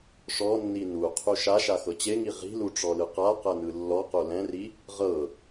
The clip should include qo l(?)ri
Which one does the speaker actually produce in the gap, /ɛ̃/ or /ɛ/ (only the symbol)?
ɛ̃